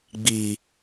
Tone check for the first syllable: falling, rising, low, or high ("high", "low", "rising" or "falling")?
low